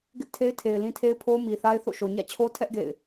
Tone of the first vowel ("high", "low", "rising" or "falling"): high